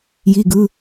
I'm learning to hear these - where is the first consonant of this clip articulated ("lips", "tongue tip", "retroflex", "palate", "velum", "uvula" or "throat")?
palate